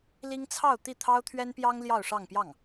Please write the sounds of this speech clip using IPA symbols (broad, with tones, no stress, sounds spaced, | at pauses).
l i˥ ŋ t͡sʰ ɑ˥˧ ʊ̯ t̪ i˥˩ t̪ʰ ɑ˥ ʊ̯ t̪ʰ ɥ ɛ˥ n p j ɑ˥ ŋ l j ɑ˥˧ ʊ̯ ʂ ɑ˥˧ ŋ p j ɑ˥˩ ŋ